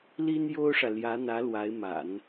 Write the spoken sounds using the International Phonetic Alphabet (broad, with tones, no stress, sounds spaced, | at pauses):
l i˥ n j o˥ ʊ̯ ʂ ä˨ l j ä˧˥ n̪ ä˧˥ l w a˧˥ ɪ̯ m a̰˨˩˦ n